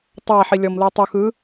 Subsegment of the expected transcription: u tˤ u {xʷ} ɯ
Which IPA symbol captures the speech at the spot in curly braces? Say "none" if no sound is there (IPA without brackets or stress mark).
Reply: x